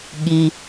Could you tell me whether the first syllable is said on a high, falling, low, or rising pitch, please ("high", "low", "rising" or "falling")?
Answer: low